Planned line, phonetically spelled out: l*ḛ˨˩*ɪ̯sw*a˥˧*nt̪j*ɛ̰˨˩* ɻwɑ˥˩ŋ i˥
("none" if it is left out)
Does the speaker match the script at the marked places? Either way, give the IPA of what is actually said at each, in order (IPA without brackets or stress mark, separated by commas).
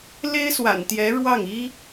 e˥, a̰˨˩, ɛ˧˥